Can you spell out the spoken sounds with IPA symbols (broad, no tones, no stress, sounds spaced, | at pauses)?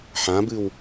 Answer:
ħ ã b ɨ w